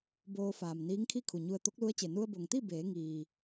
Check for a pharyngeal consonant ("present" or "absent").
absent